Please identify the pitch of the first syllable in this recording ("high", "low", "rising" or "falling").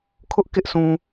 high